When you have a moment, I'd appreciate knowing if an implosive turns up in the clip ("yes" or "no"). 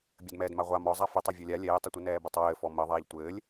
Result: no